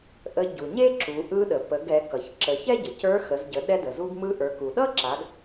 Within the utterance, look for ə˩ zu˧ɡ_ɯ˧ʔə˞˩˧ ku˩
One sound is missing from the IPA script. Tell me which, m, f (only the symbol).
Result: m